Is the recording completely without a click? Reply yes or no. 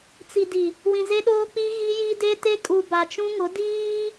yes